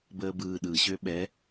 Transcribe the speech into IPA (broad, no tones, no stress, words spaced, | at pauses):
bəːbɯː ɗɯɕø ɓɛ